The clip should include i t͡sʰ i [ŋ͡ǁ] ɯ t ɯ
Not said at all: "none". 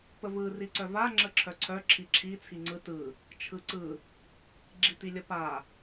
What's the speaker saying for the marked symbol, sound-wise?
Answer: ŋ͡ǀ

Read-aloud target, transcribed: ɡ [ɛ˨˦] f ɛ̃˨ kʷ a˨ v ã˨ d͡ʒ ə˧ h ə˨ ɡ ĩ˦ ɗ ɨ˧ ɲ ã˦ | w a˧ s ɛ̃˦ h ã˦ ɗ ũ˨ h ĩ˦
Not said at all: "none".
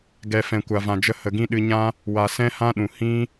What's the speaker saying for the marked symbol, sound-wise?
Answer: ɛ˨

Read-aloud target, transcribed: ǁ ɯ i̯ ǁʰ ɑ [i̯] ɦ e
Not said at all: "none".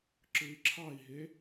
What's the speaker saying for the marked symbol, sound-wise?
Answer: i̯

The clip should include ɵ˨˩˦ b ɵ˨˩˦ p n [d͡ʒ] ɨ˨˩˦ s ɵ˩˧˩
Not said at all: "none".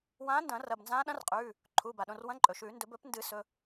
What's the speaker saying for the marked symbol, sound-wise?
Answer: d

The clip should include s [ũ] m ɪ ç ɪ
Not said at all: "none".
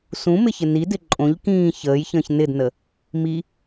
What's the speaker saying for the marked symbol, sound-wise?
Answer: ũ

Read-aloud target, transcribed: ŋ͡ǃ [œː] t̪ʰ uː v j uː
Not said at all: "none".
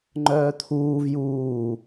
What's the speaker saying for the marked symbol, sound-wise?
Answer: œː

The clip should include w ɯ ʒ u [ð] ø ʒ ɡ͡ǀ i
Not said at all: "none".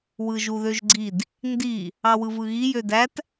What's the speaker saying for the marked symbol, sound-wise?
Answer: ð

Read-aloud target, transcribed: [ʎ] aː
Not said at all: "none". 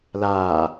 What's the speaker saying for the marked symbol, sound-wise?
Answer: l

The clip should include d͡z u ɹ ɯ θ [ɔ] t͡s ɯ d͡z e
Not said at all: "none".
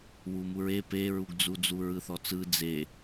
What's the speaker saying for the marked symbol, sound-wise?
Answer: ɔ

